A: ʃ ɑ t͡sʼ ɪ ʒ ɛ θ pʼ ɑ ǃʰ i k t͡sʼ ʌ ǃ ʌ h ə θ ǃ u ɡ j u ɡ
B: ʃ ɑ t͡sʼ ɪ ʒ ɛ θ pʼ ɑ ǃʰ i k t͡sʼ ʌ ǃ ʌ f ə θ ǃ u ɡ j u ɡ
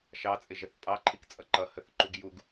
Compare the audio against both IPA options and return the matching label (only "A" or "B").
A